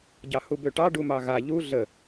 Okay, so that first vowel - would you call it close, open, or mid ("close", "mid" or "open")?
open